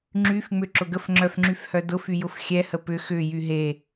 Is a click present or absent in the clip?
present